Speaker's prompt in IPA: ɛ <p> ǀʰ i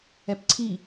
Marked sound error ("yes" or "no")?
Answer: no